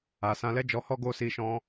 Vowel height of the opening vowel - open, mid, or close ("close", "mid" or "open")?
open